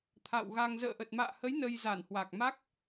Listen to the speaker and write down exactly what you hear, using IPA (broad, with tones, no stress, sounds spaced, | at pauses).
t̪ʰ a̰˧˨ w ɣ a˧ ŋ z ə̰ː˧˨ ʔ ə˨˩ t̚ m a̰ː˧˨ h ə˨˦ j n ə˧ j z a˧˩ n h w a˨˩ k̚ m a˦˥ k̚